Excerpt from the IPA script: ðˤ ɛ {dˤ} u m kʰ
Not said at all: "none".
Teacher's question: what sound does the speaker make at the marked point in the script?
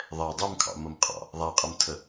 dˤ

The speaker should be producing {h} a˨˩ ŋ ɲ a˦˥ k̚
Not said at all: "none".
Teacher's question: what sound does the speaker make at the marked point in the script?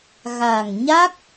ɣ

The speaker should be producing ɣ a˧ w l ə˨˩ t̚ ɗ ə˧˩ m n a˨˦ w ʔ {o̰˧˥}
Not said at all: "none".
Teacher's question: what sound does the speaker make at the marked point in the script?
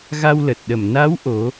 o˨˦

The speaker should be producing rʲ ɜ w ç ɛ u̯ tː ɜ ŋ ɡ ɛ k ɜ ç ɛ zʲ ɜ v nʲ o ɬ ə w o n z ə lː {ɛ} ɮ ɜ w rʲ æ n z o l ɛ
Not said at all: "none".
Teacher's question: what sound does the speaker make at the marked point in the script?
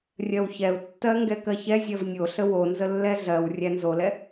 ɛ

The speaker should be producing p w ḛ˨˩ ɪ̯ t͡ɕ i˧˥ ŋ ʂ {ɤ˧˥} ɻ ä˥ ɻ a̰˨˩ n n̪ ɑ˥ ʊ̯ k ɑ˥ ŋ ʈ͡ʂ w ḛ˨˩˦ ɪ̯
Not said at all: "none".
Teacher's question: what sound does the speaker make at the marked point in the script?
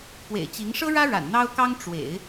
ɤ˥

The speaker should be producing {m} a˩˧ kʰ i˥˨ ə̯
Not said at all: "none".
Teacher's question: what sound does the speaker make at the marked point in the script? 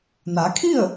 n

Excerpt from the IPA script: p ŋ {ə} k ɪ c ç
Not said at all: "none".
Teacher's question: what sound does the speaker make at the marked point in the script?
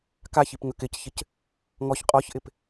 ə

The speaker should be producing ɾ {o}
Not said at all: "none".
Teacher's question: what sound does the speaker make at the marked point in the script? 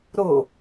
o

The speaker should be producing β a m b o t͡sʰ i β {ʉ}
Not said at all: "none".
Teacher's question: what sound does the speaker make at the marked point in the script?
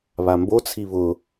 ʊ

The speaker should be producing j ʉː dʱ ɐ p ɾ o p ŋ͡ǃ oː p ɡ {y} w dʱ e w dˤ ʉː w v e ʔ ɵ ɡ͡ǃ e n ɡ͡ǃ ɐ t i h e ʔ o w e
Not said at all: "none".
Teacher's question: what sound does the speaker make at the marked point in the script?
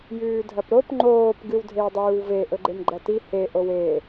ɨ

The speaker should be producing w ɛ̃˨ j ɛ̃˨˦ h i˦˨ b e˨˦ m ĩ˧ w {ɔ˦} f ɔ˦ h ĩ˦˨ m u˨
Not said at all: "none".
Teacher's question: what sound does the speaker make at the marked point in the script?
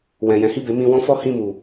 ɔ̃˦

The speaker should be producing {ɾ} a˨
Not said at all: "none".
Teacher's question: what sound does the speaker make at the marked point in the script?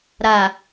ɾ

